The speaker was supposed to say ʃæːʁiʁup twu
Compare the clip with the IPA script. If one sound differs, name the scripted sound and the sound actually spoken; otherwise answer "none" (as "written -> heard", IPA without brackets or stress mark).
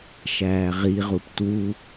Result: none